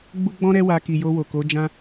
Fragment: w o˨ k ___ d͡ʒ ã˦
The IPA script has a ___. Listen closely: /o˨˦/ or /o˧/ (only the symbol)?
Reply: o˨˦